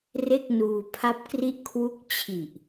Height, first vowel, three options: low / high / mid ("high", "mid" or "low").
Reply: mid